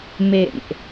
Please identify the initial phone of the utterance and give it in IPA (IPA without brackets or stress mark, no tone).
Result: m